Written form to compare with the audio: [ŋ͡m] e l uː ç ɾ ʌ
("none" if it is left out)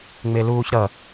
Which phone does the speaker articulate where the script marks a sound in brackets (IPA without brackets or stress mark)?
ŋ͡m